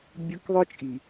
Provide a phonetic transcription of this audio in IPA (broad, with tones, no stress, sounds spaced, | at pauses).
bʲ ɯ˦ k ðˤ ɯ˦ t͡ʃʼ i˨